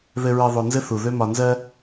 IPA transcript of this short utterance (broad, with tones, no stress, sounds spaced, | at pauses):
ð ɘ˨ ɹ ɘ˨ ðˤ o˨ n z ɘ˦ θ u˨ ð ø˦ m ɒ˨ n z ɜ˦